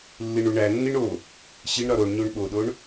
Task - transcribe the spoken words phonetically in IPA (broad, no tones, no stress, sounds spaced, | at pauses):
lː i ɳ u ɳ æ nː i ɳ o | ɕ i ɳ ɾ ɒ ɾ o ɳ ɲ o ɳ ɓ o ɗ o ɳ